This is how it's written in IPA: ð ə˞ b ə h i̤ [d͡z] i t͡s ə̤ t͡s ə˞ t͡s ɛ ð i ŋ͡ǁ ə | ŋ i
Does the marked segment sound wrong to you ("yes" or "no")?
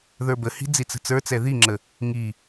no